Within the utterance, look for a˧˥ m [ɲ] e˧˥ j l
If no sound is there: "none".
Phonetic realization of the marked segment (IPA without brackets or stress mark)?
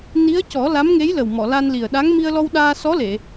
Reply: ŋ